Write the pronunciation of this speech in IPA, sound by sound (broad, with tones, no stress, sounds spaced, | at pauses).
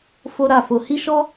f o˦ ɾ a˦˨ f o˧ h i˦ ʃ ɔ˦